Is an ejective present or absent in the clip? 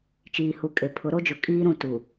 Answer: present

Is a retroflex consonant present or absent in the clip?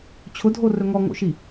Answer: absent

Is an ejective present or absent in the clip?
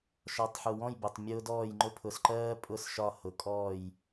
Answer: present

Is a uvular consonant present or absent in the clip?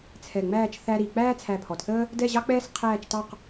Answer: present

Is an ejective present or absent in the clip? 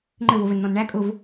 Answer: present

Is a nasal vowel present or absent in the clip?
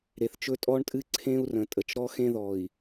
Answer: present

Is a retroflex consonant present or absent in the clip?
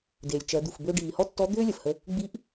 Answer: present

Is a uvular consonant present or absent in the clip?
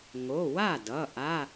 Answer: absent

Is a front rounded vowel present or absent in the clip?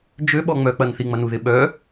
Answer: present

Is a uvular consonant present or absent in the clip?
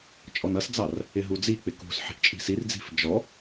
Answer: absent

